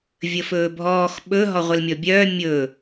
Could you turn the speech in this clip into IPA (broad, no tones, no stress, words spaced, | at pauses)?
vʲəfɵːbʱɔːx ɓɵ ɦɔʁʷəlmʲɔbʲœː mʲɵ